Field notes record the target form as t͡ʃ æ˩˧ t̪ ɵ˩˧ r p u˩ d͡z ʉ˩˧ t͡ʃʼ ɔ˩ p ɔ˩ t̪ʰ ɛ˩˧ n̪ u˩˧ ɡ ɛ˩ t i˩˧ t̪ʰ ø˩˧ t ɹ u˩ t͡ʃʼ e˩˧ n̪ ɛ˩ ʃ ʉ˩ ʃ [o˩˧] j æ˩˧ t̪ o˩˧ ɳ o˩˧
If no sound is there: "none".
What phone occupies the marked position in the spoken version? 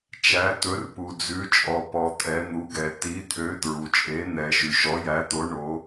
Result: ɔ˩˧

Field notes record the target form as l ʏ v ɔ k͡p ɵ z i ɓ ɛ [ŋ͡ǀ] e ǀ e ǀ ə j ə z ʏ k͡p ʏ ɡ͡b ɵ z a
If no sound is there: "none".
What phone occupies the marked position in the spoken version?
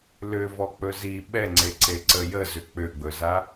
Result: ŋ͡ǀ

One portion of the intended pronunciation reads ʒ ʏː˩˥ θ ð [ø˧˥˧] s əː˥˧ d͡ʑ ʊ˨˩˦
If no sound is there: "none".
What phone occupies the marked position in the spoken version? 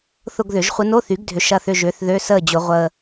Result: ø˧˥˧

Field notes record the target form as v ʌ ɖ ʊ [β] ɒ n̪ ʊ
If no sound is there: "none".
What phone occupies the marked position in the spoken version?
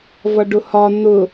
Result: h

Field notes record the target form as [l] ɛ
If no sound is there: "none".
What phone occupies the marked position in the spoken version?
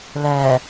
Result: l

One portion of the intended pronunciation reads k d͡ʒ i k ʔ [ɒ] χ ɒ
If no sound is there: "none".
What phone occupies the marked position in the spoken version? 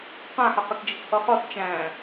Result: ʌ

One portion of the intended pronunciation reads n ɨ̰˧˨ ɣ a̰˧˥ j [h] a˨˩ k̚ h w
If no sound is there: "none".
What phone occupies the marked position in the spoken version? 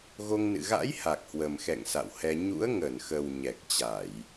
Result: h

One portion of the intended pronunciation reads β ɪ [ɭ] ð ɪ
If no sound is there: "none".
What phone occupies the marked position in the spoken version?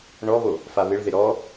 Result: ɭ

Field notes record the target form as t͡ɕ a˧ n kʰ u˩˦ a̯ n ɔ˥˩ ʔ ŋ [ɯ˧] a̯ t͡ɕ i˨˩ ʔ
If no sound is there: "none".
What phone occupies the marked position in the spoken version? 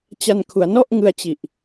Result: ɯ˧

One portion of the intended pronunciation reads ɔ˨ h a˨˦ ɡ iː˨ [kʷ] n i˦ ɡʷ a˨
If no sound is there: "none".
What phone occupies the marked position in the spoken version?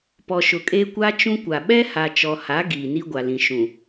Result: none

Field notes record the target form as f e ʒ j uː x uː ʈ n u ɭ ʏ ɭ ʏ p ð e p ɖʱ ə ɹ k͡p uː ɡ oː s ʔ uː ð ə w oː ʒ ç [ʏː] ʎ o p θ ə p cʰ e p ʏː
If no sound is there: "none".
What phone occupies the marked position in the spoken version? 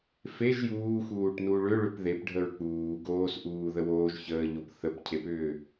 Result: əː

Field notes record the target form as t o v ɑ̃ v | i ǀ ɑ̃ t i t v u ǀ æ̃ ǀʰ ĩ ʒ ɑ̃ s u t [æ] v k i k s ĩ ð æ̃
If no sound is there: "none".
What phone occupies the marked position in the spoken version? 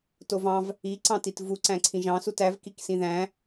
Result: æ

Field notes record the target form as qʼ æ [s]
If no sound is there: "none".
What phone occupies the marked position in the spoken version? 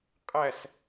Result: s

